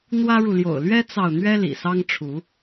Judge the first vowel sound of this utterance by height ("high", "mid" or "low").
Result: low